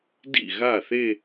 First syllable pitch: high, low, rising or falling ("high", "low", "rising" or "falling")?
falling